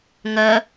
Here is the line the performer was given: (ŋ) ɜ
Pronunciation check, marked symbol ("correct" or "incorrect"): correct